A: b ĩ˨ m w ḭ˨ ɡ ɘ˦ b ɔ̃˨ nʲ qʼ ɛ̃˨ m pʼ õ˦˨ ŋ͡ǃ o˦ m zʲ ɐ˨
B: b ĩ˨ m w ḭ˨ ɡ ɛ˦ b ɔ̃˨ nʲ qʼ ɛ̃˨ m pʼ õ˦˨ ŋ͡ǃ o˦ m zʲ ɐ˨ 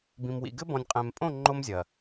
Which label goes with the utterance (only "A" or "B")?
A